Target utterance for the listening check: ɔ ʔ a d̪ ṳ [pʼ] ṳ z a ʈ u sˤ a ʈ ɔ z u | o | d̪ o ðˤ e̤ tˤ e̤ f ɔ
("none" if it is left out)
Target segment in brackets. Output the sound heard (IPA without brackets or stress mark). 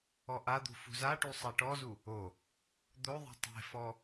f